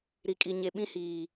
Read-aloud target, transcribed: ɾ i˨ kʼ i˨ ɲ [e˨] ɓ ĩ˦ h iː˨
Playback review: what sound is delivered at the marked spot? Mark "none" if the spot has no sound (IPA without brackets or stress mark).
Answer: e˨